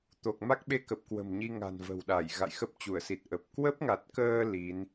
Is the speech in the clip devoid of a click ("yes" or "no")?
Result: yes